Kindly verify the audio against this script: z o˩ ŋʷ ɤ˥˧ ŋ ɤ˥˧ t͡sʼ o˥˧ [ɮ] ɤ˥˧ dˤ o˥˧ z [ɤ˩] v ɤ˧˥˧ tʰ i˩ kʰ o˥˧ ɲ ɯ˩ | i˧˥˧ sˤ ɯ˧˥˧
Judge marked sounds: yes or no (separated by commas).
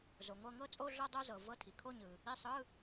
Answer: yes, yes